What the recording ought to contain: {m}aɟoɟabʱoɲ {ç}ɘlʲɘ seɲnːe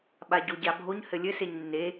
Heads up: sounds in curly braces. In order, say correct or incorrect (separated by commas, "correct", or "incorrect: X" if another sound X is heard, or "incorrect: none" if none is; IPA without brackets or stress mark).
incorrect: ɓ, incorrect: h